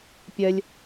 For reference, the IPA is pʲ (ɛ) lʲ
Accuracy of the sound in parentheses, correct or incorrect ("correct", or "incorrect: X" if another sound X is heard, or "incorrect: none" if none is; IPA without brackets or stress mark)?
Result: correct